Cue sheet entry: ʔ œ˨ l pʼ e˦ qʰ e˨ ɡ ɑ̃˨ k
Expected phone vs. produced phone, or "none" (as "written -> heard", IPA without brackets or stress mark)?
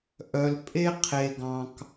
none